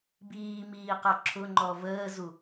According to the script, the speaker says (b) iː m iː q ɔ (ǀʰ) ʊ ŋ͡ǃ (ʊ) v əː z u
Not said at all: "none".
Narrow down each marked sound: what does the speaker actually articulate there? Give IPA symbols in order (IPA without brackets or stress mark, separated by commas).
b, ǁʰ, ɔ